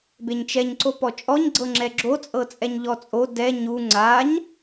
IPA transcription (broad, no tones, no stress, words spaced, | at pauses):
beɲt͡ʃɛɲ ǀopɔt͡ʃʼɔɲ ɡ͡ǀɤŋ͡ǁɛɡ͡ǁo t͡sʼɤt͡sʼɛɲʎɔt͡sʼo dɛ ɲu ŋ͡ǀaɲ